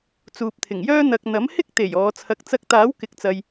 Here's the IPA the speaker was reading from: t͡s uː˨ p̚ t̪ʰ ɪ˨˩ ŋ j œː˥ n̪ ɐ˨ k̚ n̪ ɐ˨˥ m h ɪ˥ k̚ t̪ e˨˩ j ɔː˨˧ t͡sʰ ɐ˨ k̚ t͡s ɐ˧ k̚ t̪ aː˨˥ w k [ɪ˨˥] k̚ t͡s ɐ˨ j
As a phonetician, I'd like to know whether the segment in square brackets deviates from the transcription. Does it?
no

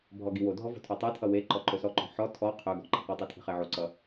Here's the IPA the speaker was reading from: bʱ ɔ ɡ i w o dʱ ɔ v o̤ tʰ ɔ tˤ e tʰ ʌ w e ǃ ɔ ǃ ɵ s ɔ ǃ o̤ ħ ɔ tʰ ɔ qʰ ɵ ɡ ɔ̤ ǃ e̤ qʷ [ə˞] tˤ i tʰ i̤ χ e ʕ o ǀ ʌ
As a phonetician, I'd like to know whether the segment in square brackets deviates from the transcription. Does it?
yes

